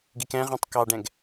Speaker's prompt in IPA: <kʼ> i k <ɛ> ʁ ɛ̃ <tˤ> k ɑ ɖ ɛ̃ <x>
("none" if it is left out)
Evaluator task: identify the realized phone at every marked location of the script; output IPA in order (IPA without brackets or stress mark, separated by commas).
ɡ, ɛ̃, tˤ, ɡ